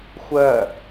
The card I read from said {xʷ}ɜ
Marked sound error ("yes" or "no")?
no